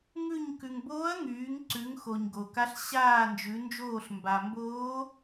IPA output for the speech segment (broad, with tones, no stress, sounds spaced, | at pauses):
ŋ ʉ˦˨ ɲ k ʉ˩ ŋ b oː˧˥ ɐ̯ ŋ yː˩˧ ŋ ǀ ʉ˩˧ ŋ x o˩ ɲ ɡ o˩ k a˧˥ ɬ ɕ aː˦˨ n d͡ʒ ʉ˩˧ n d͡ʒ oː˦˨ ɬ m b a˩ m b oː˧˥